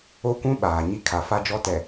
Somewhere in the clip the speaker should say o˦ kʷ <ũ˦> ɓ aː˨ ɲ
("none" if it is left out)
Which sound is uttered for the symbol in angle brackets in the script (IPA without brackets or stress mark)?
ũ˦